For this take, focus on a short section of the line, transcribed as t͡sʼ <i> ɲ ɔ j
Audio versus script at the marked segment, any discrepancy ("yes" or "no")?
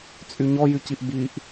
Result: yes